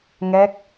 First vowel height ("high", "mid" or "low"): mid